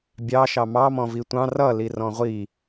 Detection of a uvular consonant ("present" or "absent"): present